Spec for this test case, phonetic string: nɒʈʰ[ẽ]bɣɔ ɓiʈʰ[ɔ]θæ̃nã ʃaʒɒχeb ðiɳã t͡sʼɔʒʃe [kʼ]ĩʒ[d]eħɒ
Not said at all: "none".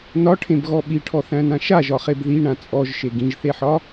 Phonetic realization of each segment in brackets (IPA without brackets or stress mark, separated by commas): ẽ, ɔ, ɡ, θ